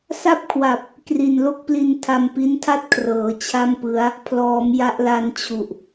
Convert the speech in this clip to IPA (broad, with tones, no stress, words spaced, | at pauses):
sa˥˩p̚kʰwa˨˩p̚ | kri˨˩nlo˥˩k̚pli˧n tʰa˧mpi˦˥ntʰa˥˩t̚ kʰrɤː˩˦ t͡ɕʰa˥˩mpɯ˦˥a̯ | pʰlɔː˩˦m ja˦˥ʔla˦˥nt͡ɕʰu˨˩ʔ